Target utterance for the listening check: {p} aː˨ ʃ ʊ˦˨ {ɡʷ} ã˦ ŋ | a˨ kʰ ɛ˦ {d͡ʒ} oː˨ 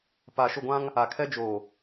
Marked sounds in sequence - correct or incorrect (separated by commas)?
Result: correct, correct, correct